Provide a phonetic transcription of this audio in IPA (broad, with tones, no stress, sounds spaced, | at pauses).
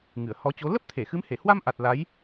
ŋ ɨ˧˩ ə̯ h ɔ˨˦ t͡ɕ o˨˦ l ə˦˥ p̚ t̪ʰ e˧˩ x ɨ˨˦ m h e˧˩ h w a˧ m ʔ a˨˩ t̚ l a˨˦ j